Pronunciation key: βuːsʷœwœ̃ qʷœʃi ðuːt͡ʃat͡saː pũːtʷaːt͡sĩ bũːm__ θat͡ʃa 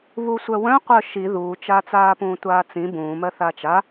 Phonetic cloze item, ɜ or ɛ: ɜ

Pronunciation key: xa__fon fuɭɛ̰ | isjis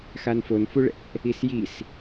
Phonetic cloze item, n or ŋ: n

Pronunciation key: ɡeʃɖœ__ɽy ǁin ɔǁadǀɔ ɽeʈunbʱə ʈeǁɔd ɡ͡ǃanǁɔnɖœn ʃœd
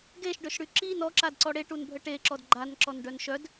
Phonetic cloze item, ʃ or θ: ʃ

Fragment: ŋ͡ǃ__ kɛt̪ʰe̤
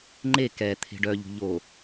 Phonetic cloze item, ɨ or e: e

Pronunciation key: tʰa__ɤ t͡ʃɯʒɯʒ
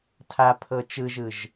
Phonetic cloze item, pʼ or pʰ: pʰ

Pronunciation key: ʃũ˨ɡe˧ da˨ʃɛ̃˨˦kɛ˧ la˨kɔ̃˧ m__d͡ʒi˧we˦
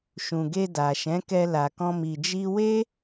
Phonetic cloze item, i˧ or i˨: i˨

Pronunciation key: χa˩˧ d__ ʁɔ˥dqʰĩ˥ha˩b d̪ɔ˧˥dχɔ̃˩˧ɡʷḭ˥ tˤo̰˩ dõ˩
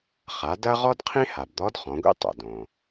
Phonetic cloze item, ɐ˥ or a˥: ɐ˥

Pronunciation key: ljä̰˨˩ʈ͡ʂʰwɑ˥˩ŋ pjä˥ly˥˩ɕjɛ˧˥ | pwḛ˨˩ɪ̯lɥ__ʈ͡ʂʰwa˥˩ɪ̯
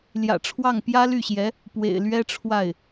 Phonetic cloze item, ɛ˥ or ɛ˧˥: ɛ˥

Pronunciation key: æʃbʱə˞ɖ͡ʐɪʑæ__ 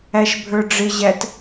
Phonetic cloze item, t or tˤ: t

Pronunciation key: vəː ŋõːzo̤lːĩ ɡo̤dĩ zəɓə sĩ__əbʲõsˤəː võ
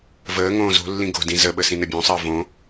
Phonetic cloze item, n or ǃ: n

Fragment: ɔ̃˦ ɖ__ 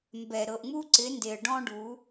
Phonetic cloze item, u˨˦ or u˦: u˨˦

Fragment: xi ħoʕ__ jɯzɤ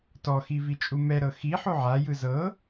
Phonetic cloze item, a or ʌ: a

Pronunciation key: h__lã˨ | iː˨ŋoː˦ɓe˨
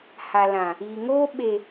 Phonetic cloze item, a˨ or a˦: a˨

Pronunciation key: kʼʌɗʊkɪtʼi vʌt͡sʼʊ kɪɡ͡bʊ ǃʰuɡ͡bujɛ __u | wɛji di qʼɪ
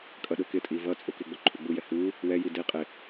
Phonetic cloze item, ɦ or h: h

